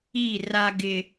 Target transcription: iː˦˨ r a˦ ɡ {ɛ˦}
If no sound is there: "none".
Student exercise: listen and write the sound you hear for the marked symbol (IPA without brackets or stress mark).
ɪ˦